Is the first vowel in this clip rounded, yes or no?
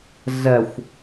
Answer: no